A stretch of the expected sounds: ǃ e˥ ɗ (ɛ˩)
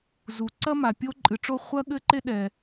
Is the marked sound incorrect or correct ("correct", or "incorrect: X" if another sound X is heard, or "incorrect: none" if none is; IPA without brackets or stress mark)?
correct